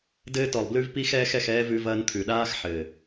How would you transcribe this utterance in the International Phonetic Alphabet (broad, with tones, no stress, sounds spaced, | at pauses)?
d ɘː˧ t ɔ˨ lˠ b l ʉ˧ v p i˦ x ɛː˦ x ɛ˧ x ɛː˦ v ʉ˧ v ɐː˧ n t̪ʰ ʉ˨ ɗ aː˦ x ħ ɘ˨